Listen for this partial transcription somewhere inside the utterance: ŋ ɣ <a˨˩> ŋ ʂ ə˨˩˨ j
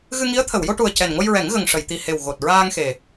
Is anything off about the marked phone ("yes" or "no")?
yes